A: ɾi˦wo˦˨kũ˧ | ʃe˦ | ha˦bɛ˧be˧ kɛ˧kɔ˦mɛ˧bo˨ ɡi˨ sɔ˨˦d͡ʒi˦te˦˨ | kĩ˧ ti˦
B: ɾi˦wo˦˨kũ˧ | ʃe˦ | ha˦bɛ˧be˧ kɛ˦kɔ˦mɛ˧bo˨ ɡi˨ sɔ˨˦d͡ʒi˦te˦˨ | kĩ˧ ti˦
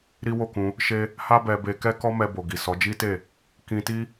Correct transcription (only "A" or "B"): B